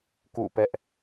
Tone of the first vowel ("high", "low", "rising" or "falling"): falling